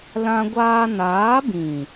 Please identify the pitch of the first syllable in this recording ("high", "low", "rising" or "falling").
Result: high